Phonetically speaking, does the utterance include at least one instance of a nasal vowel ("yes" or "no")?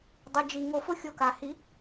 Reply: no